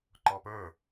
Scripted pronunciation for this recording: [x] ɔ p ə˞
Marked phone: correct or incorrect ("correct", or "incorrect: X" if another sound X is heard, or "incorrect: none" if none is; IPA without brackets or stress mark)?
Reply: incorrect: ǃ